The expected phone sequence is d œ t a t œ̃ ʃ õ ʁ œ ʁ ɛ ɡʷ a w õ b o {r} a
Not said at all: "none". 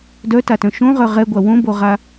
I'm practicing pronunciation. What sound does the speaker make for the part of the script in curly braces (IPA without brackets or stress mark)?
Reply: ʁ